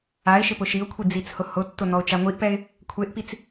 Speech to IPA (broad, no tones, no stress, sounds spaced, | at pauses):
a ɪ̯ ʃ ɪ p ʊ ʃ i ʊ̯ kʷʰ i d͡z i t͡s h ʊ h ʊ tː ʊ n ɔ ʊ̯ t͡ʃ a ŋʷ i ʔ p ɛ ɪ̯ | kʷʰ e ʔ p i t͡s